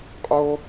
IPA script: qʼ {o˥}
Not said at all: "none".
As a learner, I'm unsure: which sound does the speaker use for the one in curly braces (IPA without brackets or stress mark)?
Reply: o˥